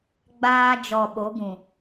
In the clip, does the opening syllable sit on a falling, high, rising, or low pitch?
high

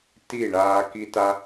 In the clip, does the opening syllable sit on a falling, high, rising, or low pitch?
falling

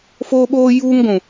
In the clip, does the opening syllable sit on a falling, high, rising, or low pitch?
high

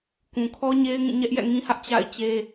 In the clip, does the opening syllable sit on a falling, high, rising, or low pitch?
low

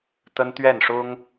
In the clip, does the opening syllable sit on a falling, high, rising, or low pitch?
high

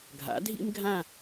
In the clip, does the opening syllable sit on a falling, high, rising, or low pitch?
rising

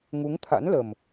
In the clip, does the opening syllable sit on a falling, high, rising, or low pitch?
rising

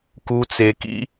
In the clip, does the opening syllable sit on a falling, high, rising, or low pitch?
low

